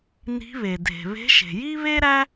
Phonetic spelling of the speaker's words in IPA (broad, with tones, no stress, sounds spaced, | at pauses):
n i̤˧˥ β e˩ dʱ e̤˩ β e̤˧˥ ʃ e̤˩ j i˥ β e˥ ɾ æ˥